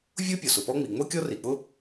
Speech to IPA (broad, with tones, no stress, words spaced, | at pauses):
vʲo˥ pʲɔ˩sʊ˩pɔ˥ŋ͡mi˩ ŋ͡mo˥kʲɔ˥ri˩k͡pʊ˥